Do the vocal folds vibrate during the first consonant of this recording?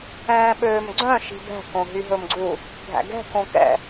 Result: yes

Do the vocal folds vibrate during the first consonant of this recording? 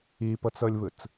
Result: no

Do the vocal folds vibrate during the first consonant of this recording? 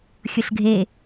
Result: no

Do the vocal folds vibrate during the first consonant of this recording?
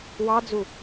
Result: yes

